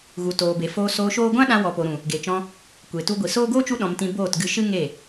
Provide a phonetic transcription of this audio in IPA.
ɣ u˨ t oː˨ b e˨ f oː˧ s oː˧ ʃ oː˦ ɡʷ ã˦ ɗ ã˧ w ɔ˨ p o˨ ɾ ũ˨ | ɡ e˨ t͡ʃ ɔ̃˧ | kʷ e˨ t u˧ ɡʷ i˨ s oː˦ ɡ oː˦ t͡ʃ u˧ ɗ ɔ̃˨ m t ĩ˧ b oː˦˨ t ɡ ɨ˧ ʃ ɨ˦ ŋ e˦˨

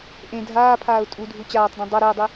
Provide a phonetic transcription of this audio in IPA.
ʔ ẽ dʱ aː pʰ aː ʊ̯ tʼ u dʱ u t͡ɕ aː tˤ d ĩ dˤ ʌ ɾ e ʊ̯ dˤ i

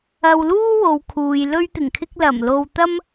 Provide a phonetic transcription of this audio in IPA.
ɐ˧ w l uː˥ w o˨ w kʰ uː˨ j l ɵ˧ ɥ t̪ ɪ˨˩ ŋ kʰ ɪ˧ k̚ l ɐ˨˩ m l o˨ w t̪ ɐ˥ m

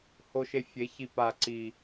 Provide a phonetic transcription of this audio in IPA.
h o˧ ʃ e˧ fʲ e˨˦ ç i˨ p a˨ ǀ i˨

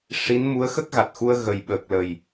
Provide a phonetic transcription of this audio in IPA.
ʂ i˧˥ n m u˧˥ ə̯ x ə˦˥ k̚ ɣ a˨˩ t̚ x u˧ ə̯ ɣ ə˨˩ j ɓ əː˨˩ k̚ l ə˨˩ j

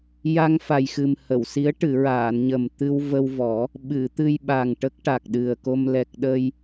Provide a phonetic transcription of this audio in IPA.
j a˧ ŋ f a˨˩ j x ɨ˨˩ m h ə˨˩˨ w s i˧˥ ə̯ ʈ ɨ˨˩˨ ɹ aː˨˩˨ n ɲ ə˨˩ m t̪ ɨ˧ w v ə˧ w v ɔ˨˩˦ | ɓ ɨ˨˩˨ t̪ ɨ˧ j ɓ a˨˩ ŋ ʈ ə˦˥ k̚ ʈ a˨˩ k̚ ɗ ɨ˨˩ ə̯ k o˧ m l ɛ˨˩ k̚ ɗ ə˧ j

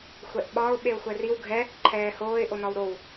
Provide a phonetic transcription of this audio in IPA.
xʷ ɛ ʔ ɓ ɒ ʊ̯ ɓ e ʊ̯ xʷ ɛ r i w ɡʱ ɛ | ǃʰ ɛː h oː ɪ̯ ʔ o n ɒ w ɾ o w

